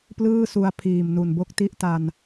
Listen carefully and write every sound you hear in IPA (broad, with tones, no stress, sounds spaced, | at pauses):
p l ɯː˥˩ s u˧ a̯ pʰ iː˨˩ m n u˨˩ n b o˥˩ k̚ t i˥˩ ʔ t a˧ n